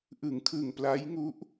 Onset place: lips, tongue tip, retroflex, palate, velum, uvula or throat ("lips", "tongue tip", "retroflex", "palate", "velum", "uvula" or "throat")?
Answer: throat